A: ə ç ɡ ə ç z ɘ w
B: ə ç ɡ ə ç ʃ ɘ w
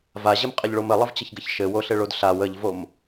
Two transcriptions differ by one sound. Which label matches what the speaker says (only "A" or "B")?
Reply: B